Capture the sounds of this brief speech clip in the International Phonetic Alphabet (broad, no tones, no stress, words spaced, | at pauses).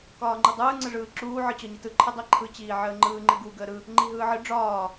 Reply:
kɒːŋ͡ǃɯdˤɯː ŋ͡ǀəʐɯːǁuː ʕɯt͡ɕɒɲitɯ ǃʰədˤiǃʰɯ t͡ɕiːʕəːŋ͡ǃɯː ŋ͡ǃɨɡu ɡəːɾɯ | ŋ͡ǃiɦɯːʕɨ ɖ͡ʐɒː